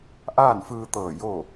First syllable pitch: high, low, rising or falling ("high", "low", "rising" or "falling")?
falling